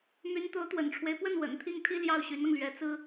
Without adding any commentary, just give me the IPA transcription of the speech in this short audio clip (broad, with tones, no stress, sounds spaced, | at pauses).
m y˧˥ n t̪ o˧˥ ʊ̯ t̪ w ə̰˨˩ n ʈ͡ʂʰ w e˦ ɪ̯ p w ə˥˩ n w ə̰˨˩ n t̪ʰ i˥˩ ŋ t̪ʰ i˥ l j ɑ˥˩ ʊ̯ ɕ y˧˥ n ɤ˧ ŋ l ɥ ɛ˧˥ t͡s ɹ̩˥